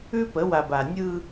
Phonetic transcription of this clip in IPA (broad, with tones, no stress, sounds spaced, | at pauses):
ʉ˦ p ə˨˦ w a˨ b a˨ nʲ ɯ˦